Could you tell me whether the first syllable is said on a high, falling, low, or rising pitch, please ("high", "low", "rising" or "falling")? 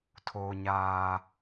high